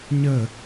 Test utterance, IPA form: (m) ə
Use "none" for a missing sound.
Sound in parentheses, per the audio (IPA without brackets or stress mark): ɲ